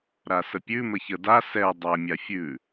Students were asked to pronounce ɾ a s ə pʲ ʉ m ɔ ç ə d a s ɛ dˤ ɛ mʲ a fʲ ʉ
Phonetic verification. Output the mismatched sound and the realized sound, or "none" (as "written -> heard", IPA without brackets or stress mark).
ɔ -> ə